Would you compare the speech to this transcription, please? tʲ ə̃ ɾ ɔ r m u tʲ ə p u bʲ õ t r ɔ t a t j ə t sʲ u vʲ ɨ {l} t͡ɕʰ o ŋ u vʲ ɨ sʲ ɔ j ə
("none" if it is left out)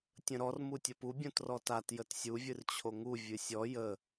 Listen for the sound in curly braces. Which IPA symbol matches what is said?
r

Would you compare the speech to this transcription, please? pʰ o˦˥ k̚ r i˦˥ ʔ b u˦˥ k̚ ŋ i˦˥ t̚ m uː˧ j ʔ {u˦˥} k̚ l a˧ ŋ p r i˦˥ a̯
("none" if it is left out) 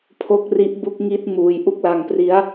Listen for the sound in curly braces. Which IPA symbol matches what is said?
u˥˩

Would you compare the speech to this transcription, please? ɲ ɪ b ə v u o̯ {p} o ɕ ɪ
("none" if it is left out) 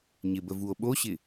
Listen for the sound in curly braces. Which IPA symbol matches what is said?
ɓ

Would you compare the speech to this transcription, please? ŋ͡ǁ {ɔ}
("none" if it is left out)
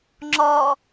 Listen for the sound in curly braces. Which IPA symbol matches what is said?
ɔ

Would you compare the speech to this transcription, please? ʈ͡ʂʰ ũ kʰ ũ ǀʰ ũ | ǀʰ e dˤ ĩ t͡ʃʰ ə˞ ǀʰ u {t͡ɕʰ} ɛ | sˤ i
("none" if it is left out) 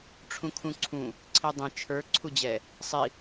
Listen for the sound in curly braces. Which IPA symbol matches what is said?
d͡ʑ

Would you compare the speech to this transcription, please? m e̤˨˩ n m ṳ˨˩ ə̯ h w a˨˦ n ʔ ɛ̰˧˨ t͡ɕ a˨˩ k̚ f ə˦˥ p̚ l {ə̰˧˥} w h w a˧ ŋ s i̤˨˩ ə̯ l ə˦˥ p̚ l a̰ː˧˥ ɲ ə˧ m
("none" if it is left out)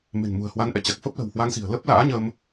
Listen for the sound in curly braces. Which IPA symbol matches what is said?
ə̤˨˩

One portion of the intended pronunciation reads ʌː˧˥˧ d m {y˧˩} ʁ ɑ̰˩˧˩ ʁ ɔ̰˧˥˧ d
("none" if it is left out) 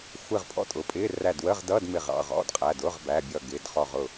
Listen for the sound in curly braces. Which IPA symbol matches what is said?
ɪ˧˩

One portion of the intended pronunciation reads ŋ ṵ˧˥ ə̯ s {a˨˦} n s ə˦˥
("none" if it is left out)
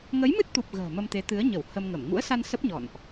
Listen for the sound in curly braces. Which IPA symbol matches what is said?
a˧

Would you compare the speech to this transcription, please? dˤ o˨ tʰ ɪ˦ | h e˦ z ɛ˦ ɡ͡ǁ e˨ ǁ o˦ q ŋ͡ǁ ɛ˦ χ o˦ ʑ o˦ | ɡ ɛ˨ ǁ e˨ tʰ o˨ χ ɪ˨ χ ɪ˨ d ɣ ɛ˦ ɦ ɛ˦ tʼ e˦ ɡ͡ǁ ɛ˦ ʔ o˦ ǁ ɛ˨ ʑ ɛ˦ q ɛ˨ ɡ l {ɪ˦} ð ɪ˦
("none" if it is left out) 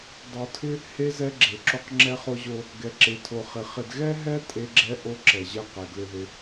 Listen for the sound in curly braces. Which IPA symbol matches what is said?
ɪ˦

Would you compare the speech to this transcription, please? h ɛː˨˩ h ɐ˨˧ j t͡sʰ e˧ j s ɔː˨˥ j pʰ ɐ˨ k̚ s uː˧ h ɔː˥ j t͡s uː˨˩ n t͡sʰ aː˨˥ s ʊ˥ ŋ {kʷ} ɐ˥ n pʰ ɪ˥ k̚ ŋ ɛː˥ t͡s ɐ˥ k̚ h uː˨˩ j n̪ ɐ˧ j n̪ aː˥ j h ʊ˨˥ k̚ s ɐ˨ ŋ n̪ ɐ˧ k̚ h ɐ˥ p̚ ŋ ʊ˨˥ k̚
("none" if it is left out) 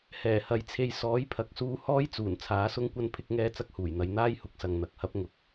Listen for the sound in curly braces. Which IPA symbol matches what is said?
kʷ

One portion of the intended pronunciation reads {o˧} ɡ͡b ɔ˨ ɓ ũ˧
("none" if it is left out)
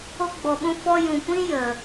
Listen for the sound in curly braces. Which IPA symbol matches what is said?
o˧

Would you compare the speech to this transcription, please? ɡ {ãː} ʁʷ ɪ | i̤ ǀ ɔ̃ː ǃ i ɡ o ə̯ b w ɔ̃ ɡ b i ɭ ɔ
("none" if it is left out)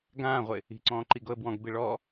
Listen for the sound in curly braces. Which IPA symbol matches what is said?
ãː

